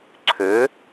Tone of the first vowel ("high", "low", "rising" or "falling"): rising